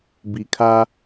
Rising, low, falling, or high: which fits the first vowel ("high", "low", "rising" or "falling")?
low